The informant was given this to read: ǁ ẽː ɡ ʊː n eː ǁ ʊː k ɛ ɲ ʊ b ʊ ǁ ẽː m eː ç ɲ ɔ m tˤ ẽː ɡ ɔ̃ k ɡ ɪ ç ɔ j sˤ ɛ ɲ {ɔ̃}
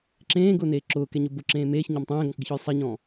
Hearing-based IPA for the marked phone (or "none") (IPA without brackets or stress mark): ɔ̃